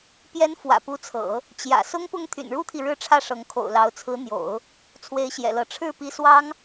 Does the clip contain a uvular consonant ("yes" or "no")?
no